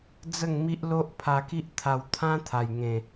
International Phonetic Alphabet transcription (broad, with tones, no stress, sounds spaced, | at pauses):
d͡z ə˥˧ ŋ m i˦ ʔ l o˦ ʔ pʰ a˧ k i˦ ʔ t̪ʰ a˧ w t̪ʰ ã˦ t̪ʰ a˨˩ j ŋ ẽ˨˩